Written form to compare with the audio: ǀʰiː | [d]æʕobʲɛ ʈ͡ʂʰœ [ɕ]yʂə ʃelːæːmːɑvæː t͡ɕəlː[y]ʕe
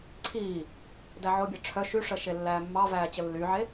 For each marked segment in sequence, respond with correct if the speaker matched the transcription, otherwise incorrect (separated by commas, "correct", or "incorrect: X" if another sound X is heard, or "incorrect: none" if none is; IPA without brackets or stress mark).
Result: correct, incorrect: ʃ, correct